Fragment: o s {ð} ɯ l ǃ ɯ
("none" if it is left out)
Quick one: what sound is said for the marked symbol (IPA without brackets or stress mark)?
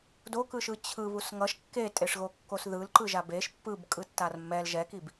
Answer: ð